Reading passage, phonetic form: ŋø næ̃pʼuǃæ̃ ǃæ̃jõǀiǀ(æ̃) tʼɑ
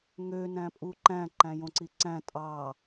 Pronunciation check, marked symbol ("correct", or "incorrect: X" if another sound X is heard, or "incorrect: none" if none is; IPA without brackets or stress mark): correct